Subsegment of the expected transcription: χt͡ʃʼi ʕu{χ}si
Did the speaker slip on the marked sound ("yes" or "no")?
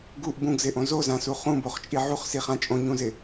no